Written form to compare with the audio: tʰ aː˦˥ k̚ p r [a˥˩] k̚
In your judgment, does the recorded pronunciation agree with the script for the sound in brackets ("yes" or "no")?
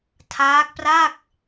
yes